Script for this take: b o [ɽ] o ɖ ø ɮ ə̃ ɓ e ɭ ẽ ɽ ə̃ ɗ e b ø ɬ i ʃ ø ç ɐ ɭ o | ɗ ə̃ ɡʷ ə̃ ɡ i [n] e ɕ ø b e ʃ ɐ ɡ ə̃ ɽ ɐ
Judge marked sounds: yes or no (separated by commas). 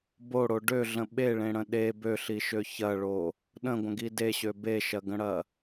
yes, no